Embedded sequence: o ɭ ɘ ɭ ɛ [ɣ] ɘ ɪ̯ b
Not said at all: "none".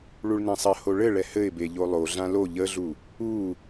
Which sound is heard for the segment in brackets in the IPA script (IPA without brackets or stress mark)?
h